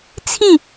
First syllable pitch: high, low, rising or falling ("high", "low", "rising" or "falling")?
falling